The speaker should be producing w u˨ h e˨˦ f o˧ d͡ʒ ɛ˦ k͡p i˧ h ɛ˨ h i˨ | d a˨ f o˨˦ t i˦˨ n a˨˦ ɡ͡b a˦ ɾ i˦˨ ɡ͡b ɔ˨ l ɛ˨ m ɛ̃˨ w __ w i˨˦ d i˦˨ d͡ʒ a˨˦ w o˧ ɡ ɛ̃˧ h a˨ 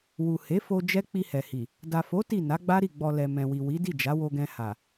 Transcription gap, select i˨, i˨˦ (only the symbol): i˨